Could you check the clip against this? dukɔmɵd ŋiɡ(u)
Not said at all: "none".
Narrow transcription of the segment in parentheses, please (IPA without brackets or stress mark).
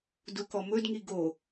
o